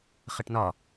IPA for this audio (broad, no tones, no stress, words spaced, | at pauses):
χəʈnɒ